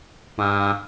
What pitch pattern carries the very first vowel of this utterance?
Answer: high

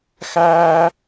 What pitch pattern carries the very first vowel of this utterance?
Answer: high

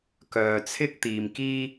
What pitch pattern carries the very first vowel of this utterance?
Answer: low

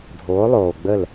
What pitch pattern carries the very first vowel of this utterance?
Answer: rising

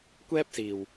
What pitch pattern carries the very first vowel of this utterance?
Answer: high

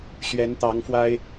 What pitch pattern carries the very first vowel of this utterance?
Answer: rising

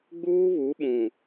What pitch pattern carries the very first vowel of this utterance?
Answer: high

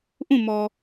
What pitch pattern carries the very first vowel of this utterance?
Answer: falling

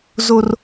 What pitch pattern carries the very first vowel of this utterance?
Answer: high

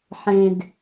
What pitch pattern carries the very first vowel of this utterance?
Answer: low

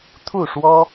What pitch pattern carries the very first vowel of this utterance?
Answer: falling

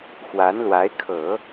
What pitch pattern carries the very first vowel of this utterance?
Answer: rising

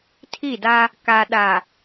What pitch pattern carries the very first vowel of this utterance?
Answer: falling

